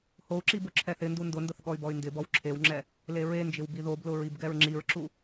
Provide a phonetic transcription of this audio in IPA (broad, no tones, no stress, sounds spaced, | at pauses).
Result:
h o u̯ ǁ i b ʊ ǁʰ ɛ θ ɪ n d u n d ʊ n d ʊ θ ɠ ɔ y̯ b ɔ y̯ n d ɪ b ɔ w ǁʰ e w ŋ͡ǁ ɛ | l e ɹ e n d͡ʒ ɪ w b i ð o b l ʊ ɹ i b ɡ ɛ ɹ ŋ͡ǁ i ɹ ǁ u